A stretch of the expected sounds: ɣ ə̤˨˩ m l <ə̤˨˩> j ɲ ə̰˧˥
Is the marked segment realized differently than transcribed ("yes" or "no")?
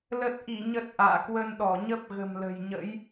no